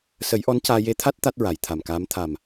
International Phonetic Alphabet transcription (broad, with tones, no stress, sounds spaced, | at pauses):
s ə˨˩˦ j ʔ ɔ˧˥ n c aː˧ j e˧ t̪ʰ a˦˥ t̚ t̪ a˦˥ t̚ ɹ a˨˩˨ j t̪ʰ a˨˩ m k aː˧˥ m t̪ʰ a˨˩ m